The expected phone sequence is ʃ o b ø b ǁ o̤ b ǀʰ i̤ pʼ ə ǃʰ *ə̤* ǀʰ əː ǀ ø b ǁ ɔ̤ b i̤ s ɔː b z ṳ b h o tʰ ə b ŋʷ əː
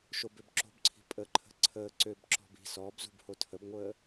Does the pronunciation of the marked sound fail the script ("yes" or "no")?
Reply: no